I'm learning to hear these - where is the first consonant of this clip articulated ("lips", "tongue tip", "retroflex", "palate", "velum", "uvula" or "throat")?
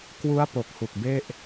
velum